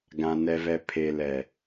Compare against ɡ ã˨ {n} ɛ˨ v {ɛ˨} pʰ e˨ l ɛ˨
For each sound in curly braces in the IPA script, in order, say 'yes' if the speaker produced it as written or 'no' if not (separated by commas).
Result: yes, yes